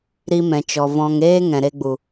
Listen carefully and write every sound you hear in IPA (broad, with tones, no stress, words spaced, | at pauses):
ɾi˧mɛ̃˨t͡ʃɔ˨ vɔ̃˧ŋ eː˦ ŋɛ̃˨ɾe˧ɡ͡bu˨